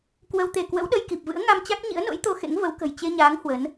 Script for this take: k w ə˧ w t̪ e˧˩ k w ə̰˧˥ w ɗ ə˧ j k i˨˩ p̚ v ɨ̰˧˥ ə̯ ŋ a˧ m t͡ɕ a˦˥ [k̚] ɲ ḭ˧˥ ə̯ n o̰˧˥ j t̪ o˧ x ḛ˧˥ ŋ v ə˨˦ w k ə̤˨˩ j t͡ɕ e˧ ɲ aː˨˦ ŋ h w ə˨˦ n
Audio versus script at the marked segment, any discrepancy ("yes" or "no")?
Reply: no